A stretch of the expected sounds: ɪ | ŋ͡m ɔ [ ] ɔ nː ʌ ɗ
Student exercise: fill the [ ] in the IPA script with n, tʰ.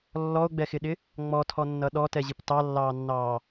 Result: tʰ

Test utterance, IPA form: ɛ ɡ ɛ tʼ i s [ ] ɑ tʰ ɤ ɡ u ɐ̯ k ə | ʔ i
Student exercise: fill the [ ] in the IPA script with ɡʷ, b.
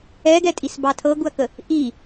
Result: b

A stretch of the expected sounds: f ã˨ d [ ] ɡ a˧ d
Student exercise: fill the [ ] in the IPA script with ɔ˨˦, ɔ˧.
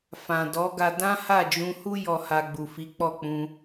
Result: ɔ˨˦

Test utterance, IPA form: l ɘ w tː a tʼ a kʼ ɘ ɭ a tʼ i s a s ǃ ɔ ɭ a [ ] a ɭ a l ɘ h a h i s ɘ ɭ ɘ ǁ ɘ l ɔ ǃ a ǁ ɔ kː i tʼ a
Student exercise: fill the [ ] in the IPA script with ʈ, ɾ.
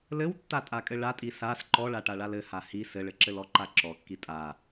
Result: ʈ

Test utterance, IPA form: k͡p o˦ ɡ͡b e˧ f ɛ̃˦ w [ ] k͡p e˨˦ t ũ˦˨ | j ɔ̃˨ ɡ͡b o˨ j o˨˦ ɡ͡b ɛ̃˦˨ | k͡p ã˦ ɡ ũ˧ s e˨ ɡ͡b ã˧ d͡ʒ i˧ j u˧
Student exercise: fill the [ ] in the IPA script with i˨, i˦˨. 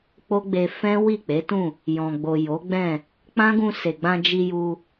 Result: i˦˨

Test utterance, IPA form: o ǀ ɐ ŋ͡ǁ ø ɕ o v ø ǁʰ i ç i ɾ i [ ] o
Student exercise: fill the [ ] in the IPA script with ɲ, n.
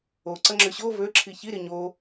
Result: ɲ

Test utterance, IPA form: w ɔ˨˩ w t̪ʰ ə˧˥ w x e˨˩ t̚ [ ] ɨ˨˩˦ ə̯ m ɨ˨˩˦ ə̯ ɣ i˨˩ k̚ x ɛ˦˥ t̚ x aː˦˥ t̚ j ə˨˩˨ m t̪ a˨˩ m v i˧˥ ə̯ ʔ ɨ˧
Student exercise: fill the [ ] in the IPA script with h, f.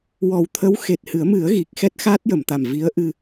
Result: h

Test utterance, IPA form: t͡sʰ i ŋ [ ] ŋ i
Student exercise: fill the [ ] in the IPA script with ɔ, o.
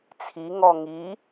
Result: ɔ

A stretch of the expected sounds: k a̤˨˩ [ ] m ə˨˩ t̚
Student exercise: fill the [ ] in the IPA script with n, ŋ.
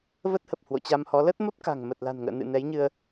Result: ŋ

